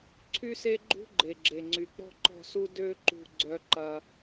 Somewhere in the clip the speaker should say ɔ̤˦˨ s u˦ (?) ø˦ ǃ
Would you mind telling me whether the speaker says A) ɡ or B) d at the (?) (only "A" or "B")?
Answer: B